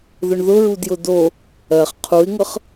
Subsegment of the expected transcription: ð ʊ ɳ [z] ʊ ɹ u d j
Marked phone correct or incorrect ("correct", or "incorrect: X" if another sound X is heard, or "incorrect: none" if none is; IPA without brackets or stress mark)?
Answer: incorrect: ð